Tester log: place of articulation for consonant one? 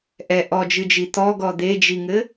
glottal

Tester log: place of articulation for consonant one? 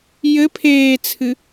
palatal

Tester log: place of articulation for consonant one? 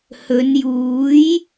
glottal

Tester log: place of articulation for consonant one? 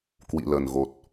velar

